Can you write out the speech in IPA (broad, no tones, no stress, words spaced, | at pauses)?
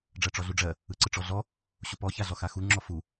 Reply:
ɖ͡ʐɜʈ͡ʂɔɮuɖ͡ʐɜ | ɯǀɯʈ͡ʂɔɮɔ | ɕupɔ çaɮɔxaxu ŋ͡ǁɔfu